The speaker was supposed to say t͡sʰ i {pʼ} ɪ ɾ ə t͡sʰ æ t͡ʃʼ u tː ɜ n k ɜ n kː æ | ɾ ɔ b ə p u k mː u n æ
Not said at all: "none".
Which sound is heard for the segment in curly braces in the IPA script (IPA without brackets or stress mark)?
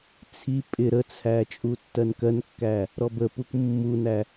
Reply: pʼ